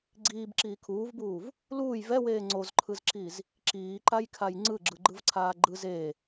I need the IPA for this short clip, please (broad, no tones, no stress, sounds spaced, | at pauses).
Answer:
ɡ͡ǀ iː b ǁ iː kʰ uː v b uː v | l uː j v ɛ w eː ŋ͡ǀ o z ǃʰ ɯ z ǁ i z | ǁ iː ǃ a j kʰ a j ŋ͡ǀ ɯ ɡ͡ǁ ɯ ɡ͡ǃ ɯ v ǀʰ aː ɡ͡ǃ ɯ z e